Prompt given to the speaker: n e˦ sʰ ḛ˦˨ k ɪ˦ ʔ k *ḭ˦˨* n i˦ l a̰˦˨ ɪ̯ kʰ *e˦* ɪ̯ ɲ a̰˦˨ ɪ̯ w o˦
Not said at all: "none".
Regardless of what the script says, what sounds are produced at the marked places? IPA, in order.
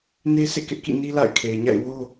ḭ˦˨, e˨

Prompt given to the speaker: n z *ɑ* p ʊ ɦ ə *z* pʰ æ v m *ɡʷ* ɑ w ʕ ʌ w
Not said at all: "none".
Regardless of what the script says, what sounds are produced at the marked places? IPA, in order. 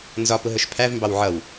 ɒ, ʃ, b

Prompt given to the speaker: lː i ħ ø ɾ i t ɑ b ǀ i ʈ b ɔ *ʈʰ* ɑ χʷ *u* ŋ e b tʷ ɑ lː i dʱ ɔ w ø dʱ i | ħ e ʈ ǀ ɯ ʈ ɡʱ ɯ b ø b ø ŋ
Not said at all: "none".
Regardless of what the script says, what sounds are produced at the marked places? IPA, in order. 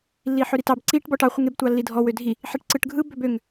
ʈ, ɯ

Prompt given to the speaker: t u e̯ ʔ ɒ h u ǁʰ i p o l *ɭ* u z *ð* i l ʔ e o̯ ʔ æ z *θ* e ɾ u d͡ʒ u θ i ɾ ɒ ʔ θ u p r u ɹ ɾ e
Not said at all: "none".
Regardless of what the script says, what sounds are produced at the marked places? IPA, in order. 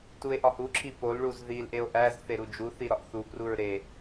ɭ, ð, θ

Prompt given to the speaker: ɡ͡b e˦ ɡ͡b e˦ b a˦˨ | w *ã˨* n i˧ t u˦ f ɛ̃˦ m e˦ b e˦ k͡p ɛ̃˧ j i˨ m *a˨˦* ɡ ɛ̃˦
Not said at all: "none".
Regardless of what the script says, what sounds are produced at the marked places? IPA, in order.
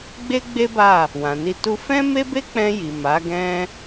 ã˨, a˨˦

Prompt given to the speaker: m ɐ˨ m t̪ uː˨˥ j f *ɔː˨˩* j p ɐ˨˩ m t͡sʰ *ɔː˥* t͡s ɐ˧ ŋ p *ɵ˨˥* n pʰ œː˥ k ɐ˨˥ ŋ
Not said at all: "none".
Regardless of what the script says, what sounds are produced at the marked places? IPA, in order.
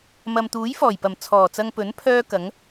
ɔː˨˩, ɔː˨˩, ɵ˨˥

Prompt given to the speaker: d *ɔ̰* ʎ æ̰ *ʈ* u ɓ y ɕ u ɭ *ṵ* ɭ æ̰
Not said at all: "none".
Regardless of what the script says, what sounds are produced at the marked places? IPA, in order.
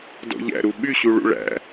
ɔ̰, ɾ, ṵ

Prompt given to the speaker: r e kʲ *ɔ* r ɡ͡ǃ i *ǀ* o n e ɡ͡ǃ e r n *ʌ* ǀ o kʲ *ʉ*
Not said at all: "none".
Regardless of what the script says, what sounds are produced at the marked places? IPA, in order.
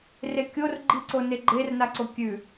o, ǀ, a, ʉ

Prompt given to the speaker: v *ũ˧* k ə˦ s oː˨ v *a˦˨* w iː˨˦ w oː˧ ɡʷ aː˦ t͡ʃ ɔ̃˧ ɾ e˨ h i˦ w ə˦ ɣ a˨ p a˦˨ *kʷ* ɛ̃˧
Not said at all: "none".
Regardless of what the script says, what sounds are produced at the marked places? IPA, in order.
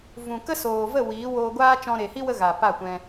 ũ˨, ə˦˨, kʷ

